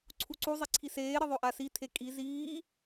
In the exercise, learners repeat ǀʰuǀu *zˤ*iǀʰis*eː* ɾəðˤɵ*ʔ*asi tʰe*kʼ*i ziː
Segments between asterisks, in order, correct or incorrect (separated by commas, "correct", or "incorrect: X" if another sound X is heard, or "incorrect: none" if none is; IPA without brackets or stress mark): correct, correct, correct, correct